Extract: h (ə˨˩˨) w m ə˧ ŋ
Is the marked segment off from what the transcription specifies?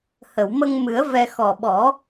no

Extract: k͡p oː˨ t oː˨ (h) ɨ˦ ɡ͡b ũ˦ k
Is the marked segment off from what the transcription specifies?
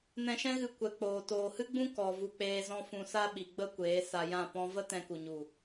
no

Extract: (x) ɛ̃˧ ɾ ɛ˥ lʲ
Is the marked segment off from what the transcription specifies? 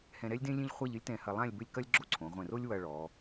yes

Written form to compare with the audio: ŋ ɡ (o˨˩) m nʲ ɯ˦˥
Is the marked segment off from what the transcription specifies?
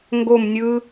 yes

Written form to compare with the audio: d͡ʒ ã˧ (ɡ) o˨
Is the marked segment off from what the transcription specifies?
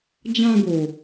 no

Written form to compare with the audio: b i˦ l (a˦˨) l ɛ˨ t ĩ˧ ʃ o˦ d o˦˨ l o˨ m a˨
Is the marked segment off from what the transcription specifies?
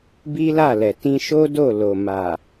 no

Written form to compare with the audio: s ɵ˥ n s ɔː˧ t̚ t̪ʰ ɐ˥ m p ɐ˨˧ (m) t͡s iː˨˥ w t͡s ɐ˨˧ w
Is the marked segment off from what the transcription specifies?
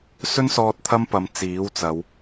no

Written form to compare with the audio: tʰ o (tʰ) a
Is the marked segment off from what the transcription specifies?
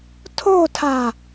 no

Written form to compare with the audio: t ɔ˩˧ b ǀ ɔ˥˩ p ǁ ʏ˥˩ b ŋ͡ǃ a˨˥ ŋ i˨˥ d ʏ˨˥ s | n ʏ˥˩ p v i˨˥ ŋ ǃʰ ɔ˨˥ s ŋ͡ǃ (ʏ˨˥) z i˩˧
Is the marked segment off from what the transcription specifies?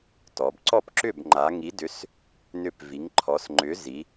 no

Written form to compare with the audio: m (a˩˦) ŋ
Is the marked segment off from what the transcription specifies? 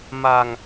yes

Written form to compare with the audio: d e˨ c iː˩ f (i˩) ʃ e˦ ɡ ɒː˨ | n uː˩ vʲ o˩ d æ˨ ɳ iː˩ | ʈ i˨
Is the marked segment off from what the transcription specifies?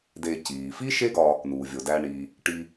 yes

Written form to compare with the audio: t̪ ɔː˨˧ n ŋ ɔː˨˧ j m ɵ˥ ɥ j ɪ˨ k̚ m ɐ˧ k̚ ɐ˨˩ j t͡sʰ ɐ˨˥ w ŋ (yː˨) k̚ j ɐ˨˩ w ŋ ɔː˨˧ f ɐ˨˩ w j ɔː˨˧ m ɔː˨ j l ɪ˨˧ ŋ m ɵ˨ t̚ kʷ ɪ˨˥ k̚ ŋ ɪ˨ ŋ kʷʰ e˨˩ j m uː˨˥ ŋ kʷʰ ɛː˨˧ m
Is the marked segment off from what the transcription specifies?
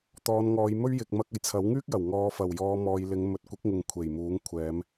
yes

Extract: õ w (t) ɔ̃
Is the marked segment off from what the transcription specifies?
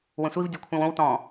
no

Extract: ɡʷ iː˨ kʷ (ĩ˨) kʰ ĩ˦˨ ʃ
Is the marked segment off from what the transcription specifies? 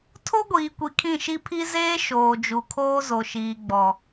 yes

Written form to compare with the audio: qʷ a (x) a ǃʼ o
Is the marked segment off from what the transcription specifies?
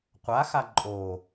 no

